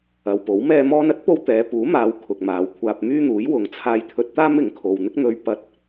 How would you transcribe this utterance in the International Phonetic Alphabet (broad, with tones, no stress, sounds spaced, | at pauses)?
ɐ˨ w p o˨˥ w m ɛː˥ m ɔː˧ n ɐ˥ t̚ p o˧ w t̪ ɛː˨˧ p uː˨˥ m aː˨˧ w kʰ ʊ˨ k̚ m aː˨˧ w kʷʰ aː˧ p̚ m yː˥ n̪ uː˨˥ j w ʊ˨ ŋ t͡sʰ aː˧ j t̪ʰ ɵ˧ t̚ t̪ aː˥ m ɪ˨˥ ŋ kʰ o˨ w n̪ ɪ˥ k̚ n̪ ɵ˧ ɥ p ɐ˧ t̚